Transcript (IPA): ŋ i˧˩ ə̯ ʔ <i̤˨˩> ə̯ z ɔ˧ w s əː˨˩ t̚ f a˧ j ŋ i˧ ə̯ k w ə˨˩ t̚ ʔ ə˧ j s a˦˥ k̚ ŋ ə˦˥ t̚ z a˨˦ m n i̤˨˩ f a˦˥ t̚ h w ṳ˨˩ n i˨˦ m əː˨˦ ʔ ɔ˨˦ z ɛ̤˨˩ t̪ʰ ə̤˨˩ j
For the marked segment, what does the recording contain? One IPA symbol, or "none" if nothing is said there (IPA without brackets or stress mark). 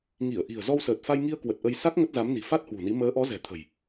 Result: i̤˨˩